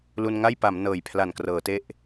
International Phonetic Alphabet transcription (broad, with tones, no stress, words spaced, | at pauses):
lu˧nŋa˥˩jpa˩˦m nɤː˨˩jpʰla˨˩nkrɤː˩˦te˦˥ʔ